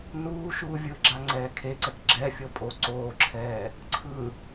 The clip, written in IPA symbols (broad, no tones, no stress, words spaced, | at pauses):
nuː ʃuːvʲɯɡ͡ǁa ŋ͡ǀɛːkʰeǀɛk ɡ͡ǁɛfʲɤ pʼo ǀoːǁʰɛː | ǀʰɯ